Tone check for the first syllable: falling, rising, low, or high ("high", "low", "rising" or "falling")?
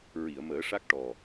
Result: low